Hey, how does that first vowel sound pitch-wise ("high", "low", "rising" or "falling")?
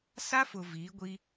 high